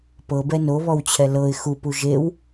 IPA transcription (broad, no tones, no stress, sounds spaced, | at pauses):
p ɤ b ɛ n o β ɔ w t͡ɕʰ ɛ l ɤ ɪ̯ x u p u ʒ e w